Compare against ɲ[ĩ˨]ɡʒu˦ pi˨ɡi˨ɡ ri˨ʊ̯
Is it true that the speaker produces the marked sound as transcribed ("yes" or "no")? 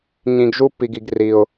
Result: yes